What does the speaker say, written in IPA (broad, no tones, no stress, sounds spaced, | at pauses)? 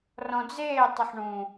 r ɔ̃ d͡z eː tˤ ʌ ħ ɳ ũ